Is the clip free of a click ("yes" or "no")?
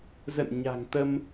yes